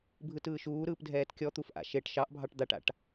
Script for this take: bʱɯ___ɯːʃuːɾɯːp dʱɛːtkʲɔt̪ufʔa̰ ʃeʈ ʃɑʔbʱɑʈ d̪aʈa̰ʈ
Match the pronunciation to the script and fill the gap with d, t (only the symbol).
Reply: t